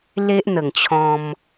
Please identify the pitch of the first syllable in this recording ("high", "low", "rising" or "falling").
high